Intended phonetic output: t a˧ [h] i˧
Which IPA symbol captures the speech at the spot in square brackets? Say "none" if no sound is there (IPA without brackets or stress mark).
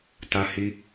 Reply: h